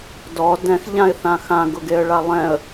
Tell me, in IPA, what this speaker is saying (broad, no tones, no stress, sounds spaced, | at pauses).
d ɔ d ɛ̃ x ʎ ã ɪ̯ θ ã x ã ɡ ʊ ɡ e ə̯ ɭ a lˠ ɛ̃ ə̯